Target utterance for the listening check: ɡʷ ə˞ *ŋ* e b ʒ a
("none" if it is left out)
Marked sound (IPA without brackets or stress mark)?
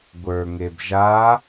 ŋ